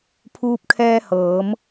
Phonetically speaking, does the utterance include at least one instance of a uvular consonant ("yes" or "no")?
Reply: no